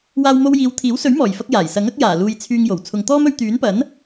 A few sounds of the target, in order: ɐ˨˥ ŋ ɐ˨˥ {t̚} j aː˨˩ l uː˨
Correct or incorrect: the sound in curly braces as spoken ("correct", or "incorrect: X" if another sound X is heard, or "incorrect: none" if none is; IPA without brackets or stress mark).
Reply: incorrect: k̚